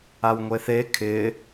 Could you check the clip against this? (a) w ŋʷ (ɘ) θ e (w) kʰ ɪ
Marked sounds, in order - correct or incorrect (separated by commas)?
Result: correct, incorrect, incorrect